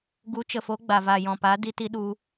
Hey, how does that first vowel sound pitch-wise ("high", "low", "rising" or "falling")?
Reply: rising